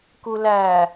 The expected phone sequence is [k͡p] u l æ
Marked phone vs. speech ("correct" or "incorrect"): incorrect